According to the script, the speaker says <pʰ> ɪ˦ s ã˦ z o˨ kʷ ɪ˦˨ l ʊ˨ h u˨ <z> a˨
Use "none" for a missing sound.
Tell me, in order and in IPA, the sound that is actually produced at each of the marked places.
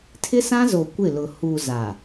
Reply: tʰ, z

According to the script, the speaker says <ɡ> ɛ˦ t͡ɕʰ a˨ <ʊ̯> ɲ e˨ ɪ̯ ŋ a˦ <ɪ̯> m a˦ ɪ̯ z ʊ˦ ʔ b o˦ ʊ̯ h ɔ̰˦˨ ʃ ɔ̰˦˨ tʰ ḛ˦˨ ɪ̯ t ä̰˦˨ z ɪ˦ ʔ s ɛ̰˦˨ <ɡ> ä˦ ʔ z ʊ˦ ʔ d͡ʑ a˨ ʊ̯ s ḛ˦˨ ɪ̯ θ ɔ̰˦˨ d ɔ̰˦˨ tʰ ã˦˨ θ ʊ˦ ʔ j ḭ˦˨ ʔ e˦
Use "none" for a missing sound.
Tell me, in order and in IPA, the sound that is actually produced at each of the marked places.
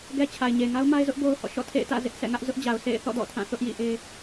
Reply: ɡ, ɪ̯, ʊ̯, ŋ

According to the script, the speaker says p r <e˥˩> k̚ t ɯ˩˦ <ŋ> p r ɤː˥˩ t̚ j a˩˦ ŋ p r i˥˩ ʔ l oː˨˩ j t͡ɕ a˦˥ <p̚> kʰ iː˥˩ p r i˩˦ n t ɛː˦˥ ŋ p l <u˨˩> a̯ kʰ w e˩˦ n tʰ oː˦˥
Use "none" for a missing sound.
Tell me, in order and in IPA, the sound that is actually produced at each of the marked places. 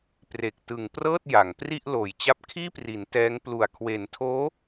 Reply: e˨˩, ŋ, p̚, u˨˩

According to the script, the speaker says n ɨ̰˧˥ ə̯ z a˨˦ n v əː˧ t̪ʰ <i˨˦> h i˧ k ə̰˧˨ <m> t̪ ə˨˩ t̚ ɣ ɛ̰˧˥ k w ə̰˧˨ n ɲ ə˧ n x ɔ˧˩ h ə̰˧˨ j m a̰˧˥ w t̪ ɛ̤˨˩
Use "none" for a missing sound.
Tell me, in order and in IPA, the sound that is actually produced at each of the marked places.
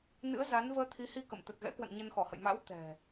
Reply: i˨˦, m

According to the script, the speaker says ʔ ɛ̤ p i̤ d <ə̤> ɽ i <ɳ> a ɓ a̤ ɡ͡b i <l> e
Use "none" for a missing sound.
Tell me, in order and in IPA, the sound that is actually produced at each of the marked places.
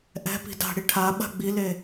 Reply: a̤, ʈʰ, l

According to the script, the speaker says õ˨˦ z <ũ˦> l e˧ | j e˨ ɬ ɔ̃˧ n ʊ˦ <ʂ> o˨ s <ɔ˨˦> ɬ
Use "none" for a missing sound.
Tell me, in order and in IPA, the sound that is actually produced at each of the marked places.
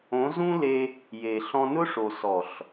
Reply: ũ˦, ʂ, ɔ˨

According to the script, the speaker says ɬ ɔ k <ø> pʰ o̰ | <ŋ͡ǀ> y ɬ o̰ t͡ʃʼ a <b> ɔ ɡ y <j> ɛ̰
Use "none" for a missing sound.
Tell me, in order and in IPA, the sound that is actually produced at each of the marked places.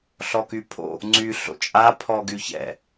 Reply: y, ŋ͡ǀ, pʰ, ç

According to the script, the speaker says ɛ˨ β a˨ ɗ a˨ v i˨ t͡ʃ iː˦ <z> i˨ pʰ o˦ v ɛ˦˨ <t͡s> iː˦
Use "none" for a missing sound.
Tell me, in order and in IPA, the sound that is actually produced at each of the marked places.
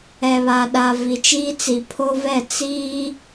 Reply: t͡s, t͡s

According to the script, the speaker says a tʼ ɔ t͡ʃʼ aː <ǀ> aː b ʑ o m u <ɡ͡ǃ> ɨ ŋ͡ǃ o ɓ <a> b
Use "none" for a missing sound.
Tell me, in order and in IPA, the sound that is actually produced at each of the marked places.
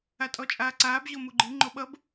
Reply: ǀ, ɡ͡ǃ, ʌ

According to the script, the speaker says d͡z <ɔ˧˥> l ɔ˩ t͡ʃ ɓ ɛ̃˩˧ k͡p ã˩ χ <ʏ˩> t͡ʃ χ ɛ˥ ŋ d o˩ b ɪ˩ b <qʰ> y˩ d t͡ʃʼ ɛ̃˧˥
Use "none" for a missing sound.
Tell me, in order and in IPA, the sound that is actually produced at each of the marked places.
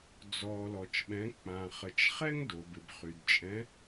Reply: ɔ˩, ə˩, χ

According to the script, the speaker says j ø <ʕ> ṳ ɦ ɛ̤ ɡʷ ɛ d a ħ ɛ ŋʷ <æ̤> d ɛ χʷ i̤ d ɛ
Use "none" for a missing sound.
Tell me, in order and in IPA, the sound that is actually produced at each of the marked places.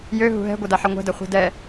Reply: ɦ, ɛ̤

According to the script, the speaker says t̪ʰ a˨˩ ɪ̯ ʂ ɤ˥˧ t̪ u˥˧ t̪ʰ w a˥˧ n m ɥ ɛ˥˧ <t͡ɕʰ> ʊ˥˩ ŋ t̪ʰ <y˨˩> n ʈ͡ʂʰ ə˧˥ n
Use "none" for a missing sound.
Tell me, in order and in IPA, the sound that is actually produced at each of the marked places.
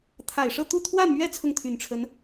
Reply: t͡sʰ, y˨˩

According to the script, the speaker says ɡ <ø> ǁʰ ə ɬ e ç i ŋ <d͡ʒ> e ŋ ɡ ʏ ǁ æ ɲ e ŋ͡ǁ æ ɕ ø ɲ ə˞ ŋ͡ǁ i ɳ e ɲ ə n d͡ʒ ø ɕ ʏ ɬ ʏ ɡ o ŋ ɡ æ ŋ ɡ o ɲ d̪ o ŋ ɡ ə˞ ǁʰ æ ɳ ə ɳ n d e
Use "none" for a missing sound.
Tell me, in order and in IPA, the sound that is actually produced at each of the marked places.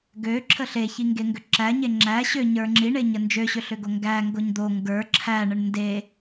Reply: ø, ɡ

